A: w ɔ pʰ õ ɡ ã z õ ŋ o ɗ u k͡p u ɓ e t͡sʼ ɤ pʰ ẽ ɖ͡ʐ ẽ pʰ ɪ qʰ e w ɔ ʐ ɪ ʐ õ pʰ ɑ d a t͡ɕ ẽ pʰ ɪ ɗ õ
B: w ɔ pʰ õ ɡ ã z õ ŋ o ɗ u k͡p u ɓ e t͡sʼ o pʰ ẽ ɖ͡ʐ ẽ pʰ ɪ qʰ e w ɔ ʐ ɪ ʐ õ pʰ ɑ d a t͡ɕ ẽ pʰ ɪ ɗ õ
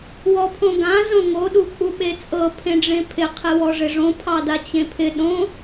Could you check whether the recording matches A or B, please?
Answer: A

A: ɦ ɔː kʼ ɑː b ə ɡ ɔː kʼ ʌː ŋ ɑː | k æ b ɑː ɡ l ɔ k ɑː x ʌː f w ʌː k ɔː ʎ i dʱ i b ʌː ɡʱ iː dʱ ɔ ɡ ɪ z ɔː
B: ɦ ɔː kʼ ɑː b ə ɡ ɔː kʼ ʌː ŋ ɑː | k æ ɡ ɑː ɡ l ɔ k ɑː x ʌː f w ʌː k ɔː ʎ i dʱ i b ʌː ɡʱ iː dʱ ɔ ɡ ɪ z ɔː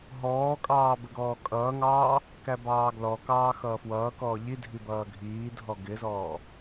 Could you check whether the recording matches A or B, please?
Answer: A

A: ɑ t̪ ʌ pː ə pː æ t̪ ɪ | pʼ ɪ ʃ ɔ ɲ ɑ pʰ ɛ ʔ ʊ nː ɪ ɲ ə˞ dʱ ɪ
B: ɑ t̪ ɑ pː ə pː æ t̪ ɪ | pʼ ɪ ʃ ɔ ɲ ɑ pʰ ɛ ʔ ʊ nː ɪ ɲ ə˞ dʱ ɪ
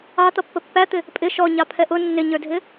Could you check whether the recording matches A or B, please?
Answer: A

